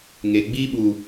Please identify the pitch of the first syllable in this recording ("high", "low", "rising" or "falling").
low